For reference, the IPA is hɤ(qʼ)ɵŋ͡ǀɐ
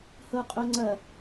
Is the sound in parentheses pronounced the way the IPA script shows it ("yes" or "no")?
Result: yes